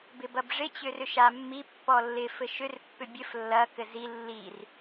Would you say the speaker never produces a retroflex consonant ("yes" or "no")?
no